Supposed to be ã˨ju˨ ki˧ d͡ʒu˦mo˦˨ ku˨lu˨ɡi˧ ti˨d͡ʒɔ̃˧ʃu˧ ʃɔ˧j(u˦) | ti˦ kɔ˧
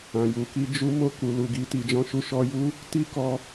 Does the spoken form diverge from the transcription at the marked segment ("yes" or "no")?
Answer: no